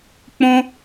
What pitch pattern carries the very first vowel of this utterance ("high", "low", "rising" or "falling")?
high